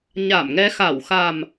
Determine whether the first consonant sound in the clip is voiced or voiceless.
voiced